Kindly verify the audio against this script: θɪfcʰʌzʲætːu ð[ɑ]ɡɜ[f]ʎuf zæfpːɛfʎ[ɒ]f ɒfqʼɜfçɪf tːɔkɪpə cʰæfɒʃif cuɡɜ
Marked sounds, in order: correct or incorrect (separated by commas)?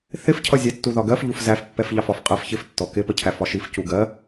incorrect, correct, incorrect